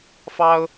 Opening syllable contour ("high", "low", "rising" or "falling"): high